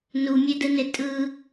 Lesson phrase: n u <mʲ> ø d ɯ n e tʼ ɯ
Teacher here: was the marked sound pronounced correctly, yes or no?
yes